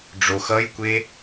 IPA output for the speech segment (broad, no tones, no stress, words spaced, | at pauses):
ɖ͡ʐox ʌjkʷe